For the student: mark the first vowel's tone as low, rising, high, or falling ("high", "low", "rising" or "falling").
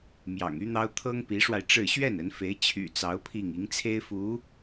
low